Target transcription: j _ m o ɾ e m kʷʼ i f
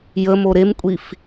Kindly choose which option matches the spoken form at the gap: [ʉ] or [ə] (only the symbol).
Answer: ə